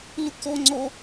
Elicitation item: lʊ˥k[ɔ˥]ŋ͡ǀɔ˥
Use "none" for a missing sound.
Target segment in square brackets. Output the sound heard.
ɔ˥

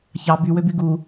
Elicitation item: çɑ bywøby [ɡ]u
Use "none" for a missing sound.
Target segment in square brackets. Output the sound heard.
ɡ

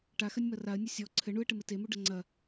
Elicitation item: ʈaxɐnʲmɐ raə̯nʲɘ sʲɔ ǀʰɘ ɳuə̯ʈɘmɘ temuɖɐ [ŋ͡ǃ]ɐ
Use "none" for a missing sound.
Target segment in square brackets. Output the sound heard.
ŋ͡ǀ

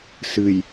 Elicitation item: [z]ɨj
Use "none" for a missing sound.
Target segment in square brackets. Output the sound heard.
s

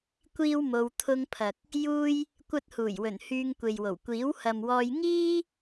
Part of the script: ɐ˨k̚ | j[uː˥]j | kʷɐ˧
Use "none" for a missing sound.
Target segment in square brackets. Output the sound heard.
uː˥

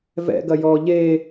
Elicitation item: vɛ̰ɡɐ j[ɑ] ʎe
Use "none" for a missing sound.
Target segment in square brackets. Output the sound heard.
ɔ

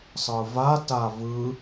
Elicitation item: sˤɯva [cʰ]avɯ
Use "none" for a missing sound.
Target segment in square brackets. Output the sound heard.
t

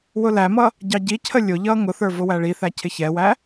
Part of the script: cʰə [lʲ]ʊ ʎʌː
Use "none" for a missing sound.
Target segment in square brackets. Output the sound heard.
lʲ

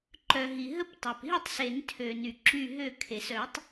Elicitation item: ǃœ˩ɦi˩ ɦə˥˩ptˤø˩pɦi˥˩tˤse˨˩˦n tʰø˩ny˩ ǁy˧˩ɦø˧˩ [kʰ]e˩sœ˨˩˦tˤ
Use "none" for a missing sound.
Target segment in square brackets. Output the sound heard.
kʰ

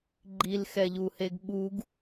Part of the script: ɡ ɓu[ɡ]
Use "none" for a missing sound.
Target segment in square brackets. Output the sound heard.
ɡ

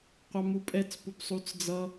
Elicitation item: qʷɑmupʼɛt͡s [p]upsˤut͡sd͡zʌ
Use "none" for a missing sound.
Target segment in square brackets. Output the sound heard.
p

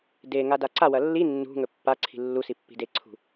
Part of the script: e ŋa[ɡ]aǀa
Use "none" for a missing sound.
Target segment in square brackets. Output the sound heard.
d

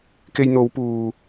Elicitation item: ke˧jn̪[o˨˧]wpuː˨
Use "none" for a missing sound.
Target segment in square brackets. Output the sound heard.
o˨˧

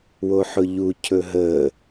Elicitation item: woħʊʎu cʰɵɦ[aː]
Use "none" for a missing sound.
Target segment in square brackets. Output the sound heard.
əː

